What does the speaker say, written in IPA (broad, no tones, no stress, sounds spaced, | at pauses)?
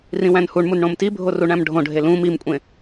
r ĩ w æ̃ n h u ɳ m u n ɳ õ m t i bʱ o r u ɳ æ̃ m ɖʱ õ ɖʱ e l ũ m i m kʷʼ ẽ